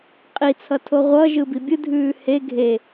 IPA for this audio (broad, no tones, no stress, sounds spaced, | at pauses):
qʼ i t͡sʰ ʌ tʰ o ʁʷ ʌ ʒ ɯ b i bʲ ɯ dʱ ʉː h e ɡʱ e